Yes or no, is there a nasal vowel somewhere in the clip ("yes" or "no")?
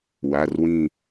yes